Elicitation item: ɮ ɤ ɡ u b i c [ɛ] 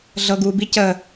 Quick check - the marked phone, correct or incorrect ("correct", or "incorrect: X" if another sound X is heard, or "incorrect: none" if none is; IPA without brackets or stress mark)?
incorrect: ə